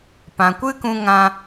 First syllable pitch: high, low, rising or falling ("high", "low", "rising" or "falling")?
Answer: low